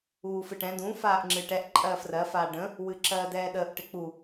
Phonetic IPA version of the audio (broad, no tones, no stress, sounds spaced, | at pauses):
uː f ɨ ʈ ɛ̃ d ũ f aː ʔ ŋ͡ǁ ɨ ʈ ɛ ʔ ǃʼ ɜː f r ɜ f aː ɖ ə̃ | w ɨ ǁ ɜː d ɛː ɗ əː ʔ ʈ ɪ k͡p u